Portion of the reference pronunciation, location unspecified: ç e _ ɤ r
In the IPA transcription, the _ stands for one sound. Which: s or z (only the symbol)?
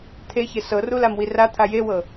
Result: s